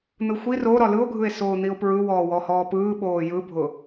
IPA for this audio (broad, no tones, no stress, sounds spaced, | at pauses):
n̪ ɯ xʷ i r o ɾ ɒ l ɯ o̯ ɡʱ ɯ e̯ s oː n̪ i o̯ p ɹ ɯ w ɔː w ɔ h ɔː p ɯː ɓ oː j ɯ bʱ ʊ